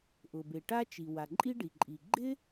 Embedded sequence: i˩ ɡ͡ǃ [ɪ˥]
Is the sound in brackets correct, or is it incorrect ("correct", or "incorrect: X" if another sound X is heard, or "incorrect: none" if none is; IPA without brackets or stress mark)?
correct